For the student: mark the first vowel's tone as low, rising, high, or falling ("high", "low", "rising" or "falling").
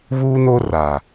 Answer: high